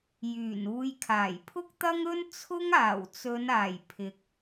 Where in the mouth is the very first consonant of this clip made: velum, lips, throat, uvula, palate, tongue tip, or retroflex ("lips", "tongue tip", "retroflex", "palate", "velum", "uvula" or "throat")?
palate